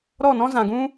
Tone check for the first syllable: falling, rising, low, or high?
falling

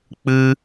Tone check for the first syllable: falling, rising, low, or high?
high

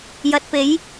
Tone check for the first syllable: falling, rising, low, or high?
rising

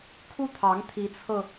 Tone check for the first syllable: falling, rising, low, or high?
falling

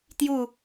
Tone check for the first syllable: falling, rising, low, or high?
falling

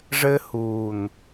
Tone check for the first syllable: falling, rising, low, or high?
high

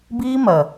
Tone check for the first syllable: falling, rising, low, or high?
high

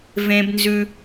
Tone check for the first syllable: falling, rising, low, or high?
high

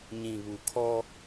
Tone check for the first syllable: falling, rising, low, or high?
low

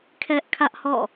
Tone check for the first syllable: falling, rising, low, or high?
high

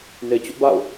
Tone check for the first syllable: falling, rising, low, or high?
low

